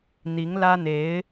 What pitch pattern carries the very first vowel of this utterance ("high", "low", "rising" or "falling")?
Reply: rising